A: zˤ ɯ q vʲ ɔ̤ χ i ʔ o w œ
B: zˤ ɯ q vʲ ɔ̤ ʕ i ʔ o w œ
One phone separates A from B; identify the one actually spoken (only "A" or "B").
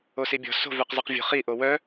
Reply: A